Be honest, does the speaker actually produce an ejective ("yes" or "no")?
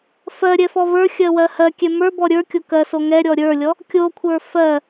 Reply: no